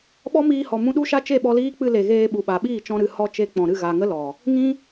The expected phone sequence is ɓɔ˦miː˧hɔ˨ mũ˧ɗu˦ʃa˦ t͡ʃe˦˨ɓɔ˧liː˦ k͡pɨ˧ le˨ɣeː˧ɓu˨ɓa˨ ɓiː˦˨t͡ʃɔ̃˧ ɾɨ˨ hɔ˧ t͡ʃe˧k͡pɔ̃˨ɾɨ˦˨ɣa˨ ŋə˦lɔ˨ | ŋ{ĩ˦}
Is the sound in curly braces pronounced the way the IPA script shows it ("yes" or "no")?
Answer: yes